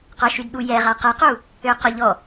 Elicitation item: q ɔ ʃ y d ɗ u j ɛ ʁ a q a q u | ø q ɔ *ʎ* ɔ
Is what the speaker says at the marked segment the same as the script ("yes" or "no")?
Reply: yes